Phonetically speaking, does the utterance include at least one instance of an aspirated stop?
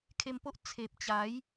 yes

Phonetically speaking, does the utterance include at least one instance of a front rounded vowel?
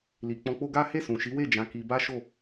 no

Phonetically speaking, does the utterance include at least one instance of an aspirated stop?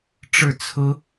yes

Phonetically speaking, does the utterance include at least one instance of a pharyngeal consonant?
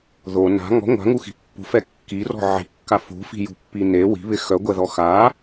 yes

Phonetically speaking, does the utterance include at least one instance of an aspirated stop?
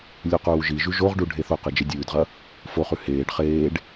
no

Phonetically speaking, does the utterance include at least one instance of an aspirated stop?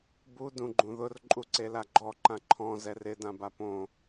yes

